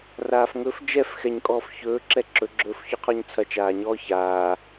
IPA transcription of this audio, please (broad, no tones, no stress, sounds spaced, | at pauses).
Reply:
r aː f ŋ ɵ f d͡ʒ ɛ f x ɛ ɲ kʼ ɔː f ç ɵː ǁ ɛ ǁ ɵ ɡ͡ǁ ɵː f ç ɔ qʰ ɔ ɲ t͡sʰ ɐ t͡ʃ aː ɲ ɔː ç aː